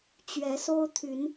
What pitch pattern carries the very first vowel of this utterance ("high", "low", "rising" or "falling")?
rising